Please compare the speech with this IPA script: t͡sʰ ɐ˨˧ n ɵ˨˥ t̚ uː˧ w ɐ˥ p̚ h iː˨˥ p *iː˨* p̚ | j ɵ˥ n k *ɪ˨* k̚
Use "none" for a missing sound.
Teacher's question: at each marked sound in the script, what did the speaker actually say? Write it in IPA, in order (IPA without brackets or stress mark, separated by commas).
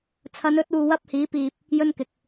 iː˨, ɪ˨